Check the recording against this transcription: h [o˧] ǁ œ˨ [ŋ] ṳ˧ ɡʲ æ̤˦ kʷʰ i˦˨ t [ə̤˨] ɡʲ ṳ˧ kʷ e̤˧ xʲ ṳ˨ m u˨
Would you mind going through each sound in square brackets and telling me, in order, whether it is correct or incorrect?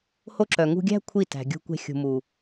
correct, correct, incorrect: æ̤˨

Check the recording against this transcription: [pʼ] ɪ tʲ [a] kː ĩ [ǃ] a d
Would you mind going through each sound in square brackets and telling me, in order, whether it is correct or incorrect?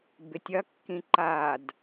incorrect: b, incorrect: ɐ, correct

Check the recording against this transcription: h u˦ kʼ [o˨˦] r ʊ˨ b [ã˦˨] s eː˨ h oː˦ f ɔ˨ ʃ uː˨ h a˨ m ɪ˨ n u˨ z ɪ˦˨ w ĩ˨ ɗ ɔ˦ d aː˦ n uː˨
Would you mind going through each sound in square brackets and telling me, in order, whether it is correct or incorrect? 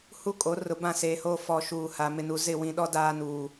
correct, correct

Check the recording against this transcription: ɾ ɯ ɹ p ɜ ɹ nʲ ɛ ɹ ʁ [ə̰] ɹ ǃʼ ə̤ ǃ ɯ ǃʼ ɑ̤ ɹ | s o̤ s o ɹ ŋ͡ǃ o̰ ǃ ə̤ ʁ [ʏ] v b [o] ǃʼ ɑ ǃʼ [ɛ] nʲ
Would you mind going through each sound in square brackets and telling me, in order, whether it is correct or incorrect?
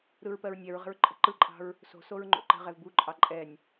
incorrect: ə̤, incorrect: ɛ, incorrect: u, correct

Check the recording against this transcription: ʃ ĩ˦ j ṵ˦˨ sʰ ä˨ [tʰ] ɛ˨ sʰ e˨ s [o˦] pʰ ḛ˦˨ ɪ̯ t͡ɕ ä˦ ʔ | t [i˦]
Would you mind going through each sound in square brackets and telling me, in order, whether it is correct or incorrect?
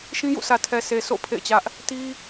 correct, incorrect: o̰˦˨, correct

